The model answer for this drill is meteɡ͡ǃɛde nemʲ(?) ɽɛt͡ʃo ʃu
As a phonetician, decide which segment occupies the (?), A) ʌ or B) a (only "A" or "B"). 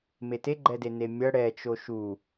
A